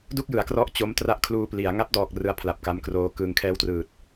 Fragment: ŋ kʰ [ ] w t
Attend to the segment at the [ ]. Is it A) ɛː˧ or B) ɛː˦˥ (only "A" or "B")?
B